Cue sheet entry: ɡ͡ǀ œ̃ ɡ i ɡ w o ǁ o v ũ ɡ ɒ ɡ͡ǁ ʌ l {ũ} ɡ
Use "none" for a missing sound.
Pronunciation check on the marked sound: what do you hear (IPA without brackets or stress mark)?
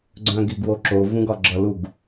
u